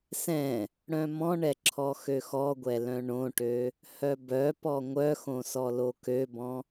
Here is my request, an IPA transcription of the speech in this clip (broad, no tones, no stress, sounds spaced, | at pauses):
s ɛ̃ | ɽ œ̃ m ɔ̃ ɳ ɛ ǁʰ ɔ x ø x ɔ ɡʷ ɛ l œ̃ ɳ õ ʈ ø | h œ b œ p ɔ ŋʷ œ x õ s ɔ l o k ø b ɔ̃